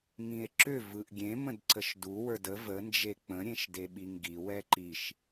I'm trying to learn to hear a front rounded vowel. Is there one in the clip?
yes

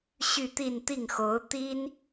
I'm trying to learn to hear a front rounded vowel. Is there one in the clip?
yes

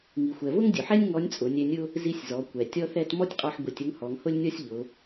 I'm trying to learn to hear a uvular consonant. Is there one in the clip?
yes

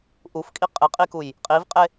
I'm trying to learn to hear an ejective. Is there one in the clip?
yes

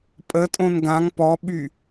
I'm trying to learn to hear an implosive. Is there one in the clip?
yes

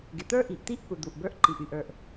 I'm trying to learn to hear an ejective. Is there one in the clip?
no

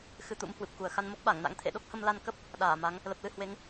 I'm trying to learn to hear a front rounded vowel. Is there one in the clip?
no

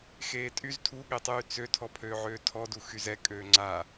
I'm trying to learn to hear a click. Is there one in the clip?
yes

